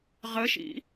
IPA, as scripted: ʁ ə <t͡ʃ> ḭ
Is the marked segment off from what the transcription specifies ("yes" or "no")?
yes